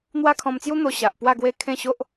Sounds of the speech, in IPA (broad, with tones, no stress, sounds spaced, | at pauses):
n̪ w a˦ kʰ ɔ̃˧ m t͡s j u˦ n̪ o˧ ɕ a˨ ʔ p w a˥˧ ɡ w e˦ kʰ ẽ˥˧ ɕ o˦ ʔ